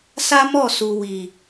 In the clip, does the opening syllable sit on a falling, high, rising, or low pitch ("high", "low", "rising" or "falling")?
high